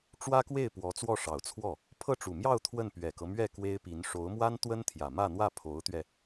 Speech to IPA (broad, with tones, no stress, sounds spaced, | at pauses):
ʈ͡ʂ w ä˥ k w e˥˩ ɪ̯ p w ɔ˧˥ t͡s w ɔ˥˩ ʂ ɑ˨˩ ʊ̯ t͡sʰ w ɔ˥˩ | pʰ ɤ˥˩ ʈ͡ʂ u˨˩ m j ɑ˥˧ ʊ̯ t̪ʰ w ə˥˩ n p ɥ ɛ˨˩ k ɤ˦ m ɥ ɛ˥˩ k w e˥ ɪ̯ p i˧˥ n ʂ o˧˥ ʊ̯ m w a˥ n t̪ w ə˥ n t̪ʰ j ä˨˩ m ä˥˧ n̪ w ä˥˩ pʰ o˧˥ ʊ̯ t̪ ɥ ɛ˧